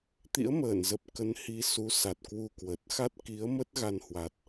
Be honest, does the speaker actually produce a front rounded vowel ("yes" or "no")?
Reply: no